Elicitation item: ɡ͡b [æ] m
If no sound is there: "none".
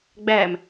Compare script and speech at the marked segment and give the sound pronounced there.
æ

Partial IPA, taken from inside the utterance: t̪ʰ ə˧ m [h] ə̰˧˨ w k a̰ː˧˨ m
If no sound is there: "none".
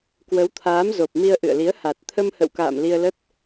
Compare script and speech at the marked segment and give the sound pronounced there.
h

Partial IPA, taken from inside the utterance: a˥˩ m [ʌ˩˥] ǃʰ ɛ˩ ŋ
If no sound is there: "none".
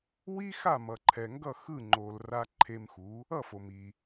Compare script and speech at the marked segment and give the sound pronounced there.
ʌ˩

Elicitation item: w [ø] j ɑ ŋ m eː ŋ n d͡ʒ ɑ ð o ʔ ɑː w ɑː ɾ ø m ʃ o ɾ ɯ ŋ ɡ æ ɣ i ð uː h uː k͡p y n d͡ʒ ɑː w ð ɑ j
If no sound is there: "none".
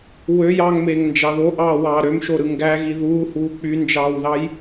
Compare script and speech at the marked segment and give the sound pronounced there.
ø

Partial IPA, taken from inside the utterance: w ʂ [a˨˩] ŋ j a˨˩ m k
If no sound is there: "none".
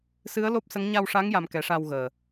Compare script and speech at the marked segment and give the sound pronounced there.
a˧˥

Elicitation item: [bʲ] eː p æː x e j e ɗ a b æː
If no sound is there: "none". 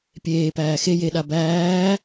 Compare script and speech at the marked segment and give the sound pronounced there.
pʲ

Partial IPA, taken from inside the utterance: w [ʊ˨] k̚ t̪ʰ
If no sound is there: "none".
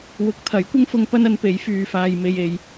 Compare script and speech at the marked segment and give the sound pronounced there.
ʊ˨˥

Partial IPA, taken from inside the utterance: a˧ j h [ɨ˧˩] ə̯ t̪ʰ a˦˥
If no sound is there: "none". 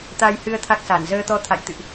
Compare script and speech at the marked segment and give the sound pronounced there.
ɨ˧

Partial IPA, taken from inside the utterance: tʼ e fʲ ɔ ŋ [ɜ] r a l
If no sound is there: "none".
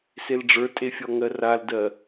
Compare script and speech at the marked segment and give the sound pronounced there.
ɜ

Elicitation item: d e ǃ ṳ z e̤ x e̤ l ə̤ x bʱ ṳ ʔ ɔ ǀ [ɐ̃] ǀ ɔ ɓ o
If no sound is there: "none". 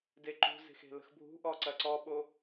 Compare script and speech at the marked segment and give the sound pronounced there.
ɐ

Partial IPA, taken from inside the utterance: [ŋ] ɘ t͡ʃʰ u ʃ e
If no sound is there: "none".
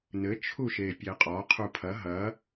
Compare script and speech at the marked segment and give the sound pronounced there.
n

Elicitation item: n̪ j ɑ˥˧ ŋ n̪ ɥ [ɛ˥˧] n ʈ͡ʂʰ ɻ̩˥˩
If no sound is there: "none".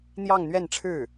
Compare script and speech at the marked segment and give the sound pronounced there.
ɛ˥˧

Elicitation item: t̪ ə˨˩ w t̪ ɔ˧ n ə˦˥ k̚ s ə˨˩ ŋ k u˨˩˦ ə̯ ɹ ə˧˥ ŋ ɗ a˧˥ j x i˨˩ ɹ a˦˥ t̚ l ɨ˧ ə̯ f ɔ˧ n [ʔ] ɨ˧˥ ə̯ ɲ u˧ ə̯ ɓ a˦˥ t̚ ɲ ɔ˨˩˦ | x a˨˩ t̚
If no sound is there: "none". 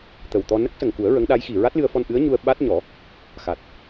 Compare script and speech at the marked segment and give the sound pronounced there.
ʔ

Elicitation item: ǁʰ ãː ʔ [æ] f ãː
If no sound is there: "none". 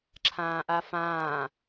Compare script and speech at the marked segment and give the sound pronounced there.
a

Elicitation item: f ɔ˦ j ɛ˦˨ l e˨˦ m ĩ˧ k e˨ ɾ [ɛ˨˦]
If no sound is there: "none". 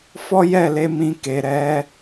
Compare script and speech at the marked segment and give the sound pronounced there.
ɛ˨˦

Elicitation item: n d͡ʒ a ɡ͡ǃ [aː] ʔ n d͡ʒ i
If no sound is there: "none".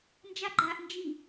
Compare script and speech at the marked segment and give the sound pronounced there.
aː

